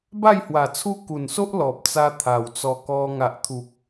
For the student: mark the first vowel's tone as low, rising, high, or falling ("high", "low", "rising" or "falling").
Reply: falling